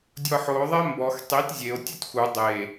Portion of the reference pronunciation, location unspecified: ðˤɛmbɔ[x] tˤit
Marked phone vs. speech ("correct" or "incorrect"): correct